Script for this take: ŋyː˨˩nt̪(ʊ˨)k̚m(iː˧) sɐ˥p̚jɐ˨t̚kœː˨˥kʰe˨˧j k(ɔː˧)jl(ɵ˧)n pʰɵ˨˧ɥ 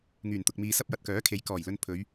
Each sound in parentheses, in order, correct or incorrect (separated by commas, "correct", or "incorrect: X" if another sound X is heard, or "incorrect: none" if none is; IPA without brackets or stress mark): correct, incorrect: iː˨, incorrect: ɔː˨˩, correct